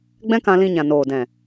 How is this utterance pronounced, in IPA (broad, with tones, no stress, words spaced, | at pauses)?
ɡ͡bɛ̃˦kã˧lĩ˧ ɲã˨noː˨dɛ̃˨